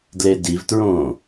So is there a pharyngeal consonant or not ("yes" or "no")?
no